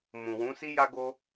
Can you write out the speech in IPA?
mũ˨wũ˨˦si˦ ja˦ɡo˦

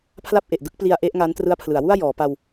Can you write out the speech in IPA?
pʰla˥˩p̚ʔe˨˩ʔ dɯ˥˩k̚pli˧a̯ ʔe˦˥ʔŋa˦˥n trɯ˦˥a̯pʰlɯ˩˦a̯wu˥˩a̯ jɔː˩˦pa˧w

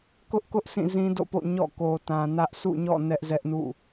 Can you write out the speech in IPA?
kʊ˦ʔkʊ˦ʔ sĩ˦˨zĩ˦do̰˦˨po̰˦˨ ɲɔ̰˦˨ko˨tã˨nä˦ʔ sṵ˦˨ɲɔ̰˦˨ nɛ˦ʔzɛ˦ʔnṵ˦˨

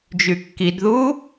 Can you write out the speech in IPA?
d͡ʒykːidðu

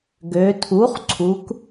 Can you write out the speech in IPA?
ɡø˩˧tʰu˩˥χ ǀʰu˩˧k

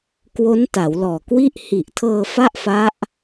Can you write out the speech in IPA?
kwo˦˥nta˩˦wlɔː˨˩kwi˥˩ʔ hi˨˩ʔtʰɤː˧ fa˥˩ʔfa˦˥ʔ

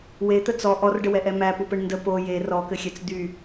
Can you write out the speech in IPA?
wet̪ə t͡sɔ ʔɔrɖəwɛʔɛ mæpupɘɳ ndə po je rɔkɘxʲɛt͡s d̪y

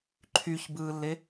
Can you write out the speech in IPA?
ǃʰyçbɯːlːe

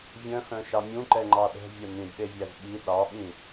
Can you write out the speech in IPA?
vʲœ̃xœ̃ʃɑ mʲũǃɛŋ͡ǃɑ ɗɛ̤vʲɛ mĩdɗevʲæz ɓi ɗɑɓĩ

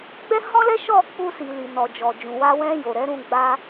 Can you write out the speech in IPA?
ɡ͡bɛ˦hɔ̃˦lɛ˦ ʃɔ˦˨ k͡pu˧si˨li˨ nɔ˨d͡ʒɔ˨d͡ʒũ˨ wa˧wɛ̃˧ jo˨ɾɛ˨˦ɾũ˧ ɡ͡ba˧

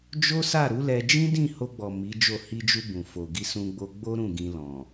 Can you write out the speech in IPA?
d͡ʒo˦sa˦˨ ɾu˨˦lɛ˧d͡ʒĩ˦ dĩ˦˨ho˧ɡ͡bɔ˨ mi˨˦d͡ʒo˦˨ hi˧d͡ʒu˧ bũ˨fo˨ ɡi˧sũ˧ɡ͡bo˧ɡ͡bo˦ ɾũ˦˨ ɡĩ˧ lɔ̃˨

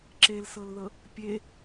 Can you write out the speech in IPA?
ǁelsɤlðɤ | pʲe

